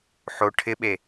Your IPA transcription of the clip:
ħ o ʈʰ ɪ ɓ e

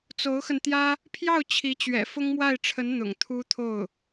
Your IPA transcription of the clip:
t͡s o˧˥ ʊ̯ x ə˧ n t̪ j ä˥ | pʰ j ɑ˥˩ ʊ̯ t͡ɕʰ i˧˥ t͡ɕ ɥ ɛ̰˨˩ f ʊ˥ ŋ m w a˥˩ ɪ̯ ʈ͡ʂʰ ə˧˥ n n̪ ʊ̰˨˩ ŋ t̪ʰ u˥ t̪ʰ o˥˩ ʊ̯

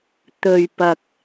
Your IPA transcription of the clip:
t̪ ɵ˨ ɥ p ɐ˨ k̚

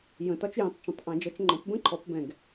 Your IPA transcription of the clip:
j ə̃˨˩˦ t ɒ˦˥ t͡ʃ j ĩ˨˩˦ tˤ t͡ʃ ə̃˨˩˦ tˤ ʔ ɛ̃˨˩˦ d͡ʒ ʌ˩˥ t͡ʃ ŋ͡ǃ ɔ̃˩˥ p b ə̃˦˥ ǃʰ ɔ˩˥ p b ɛ̃˨˩ ɡ

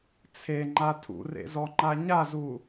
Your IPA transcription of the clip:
t͡sʰ e ŋ͡ǃ a tʰ ṵ r ḛ z ɔ ŋ͡ǃ a ɲ a z u

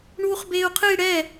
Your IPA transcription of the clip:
ɳ uː χ b eː u̯ qʰ ɨ i̯ ɽ ɛ

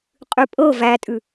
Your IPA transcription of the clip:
qʼ ʉ pʼ ɤ v æ tʼ ʉ

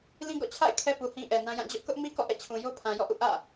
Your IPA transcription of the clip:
l ĩ˦ ɡ ɔ̰˦˨ t͡ɕʰ a̰˦˨ ɪ̯ kʰ ɛ˦ p u˨ h ĩ˦ ʔ ɛ˨ n ã˦ j ã˦˨ d͡ʑ ʊ˦ ʔ k ʊ˦ ʔ m i˦ k ɔ̰˦˨ ʔ ɛ̰˦˨ t͡ɕʰ ũ˨ j o˦ pʰ ã˨ j ɔ̰˦˨ ʔ ṵ˦˨ ʔ ä̰˦˨

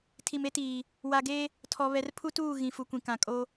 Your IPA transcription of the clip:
tʰ i˨ m e˦ t iː˨ | w a˨ ɡ eː˦ | tʰ ɔ˨ β ɛ˨ r pʰ u˦ t uː˦˨ ɣ ĩ˨ f u˨ kʷ ĩ˨ k ã˨ kʼ o˦

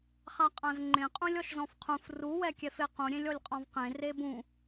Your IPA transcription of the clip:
χ a qʼ ã z ŋ͡ǃ ẽ qʼ ũ lʲ ɔ ʃ z ɔ̃ f qʰ ũ f r u w ɛ kʲ ɛ f e q ũ ɾʲ ẽ lʲ ɔ lʲ qʼ ɔ̃ v q ẽ r e b ũ

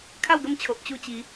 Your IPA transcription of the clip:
kʰ a˥˧ w ɡ ə˥˧ m t͡ɕʰ o˨ ʔ t͡ɕ u˥˧ t͡ɕ i˨˦

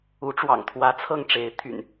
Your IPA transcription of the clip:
u˨˦ ʈ͡ʂ w ɑ̰˨˩ ŋ t̪ʰ w ä˨˦ t͡sʰ ɤ˥˨ ŋ ʈ͡ʂ e˨˦ ɪ̯ t̪ʰ y̰˨˩ n

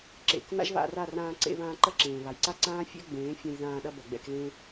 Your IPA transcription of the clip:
ǁ ḛ˨ k n a̰˦ ʒ β a̰˧ r a˦˨ r ãː˧ ǀ ḛ˧ β ãː˧ ǃ ɐ˦ ǁ ẽː˨ β a˨ j ǀ a˦ ǀ ãː˦ fʲ ɛ̰˦ ɡ͡b ẽː˨˦ fʲ ã˧ j ð ãː˧ ɗ ɐ˧ b ɐ˨ ɡ͡b ɛ̰˦˨ k l ẽ˦

